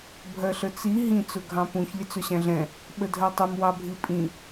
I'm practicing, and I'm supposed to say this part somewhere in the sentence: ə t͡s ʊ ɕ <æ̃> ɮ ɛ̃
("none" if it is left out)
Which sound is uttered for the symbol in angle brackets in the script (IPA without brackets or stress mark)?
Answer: æ̃